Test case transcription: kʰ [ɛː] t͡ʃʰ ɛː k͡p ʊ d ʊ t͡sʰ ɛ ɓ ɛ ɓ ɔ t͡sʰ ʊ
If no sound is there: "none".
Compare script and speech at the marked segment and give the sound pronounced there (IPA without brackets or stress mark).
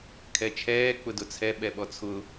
ɛ